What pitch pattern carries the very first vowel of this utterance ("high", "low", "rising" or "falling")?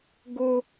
high